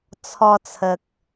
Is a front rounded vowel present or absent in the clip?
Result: absent